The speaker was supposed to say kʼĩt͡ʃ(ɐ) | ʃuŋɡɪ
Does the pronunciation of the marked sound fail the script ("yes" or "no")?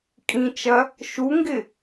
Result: no